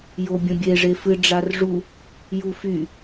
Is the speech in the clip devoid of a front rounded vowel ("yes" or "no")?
no